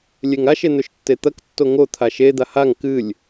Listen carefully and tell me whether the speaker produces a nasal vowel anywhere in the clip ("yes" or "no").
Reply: no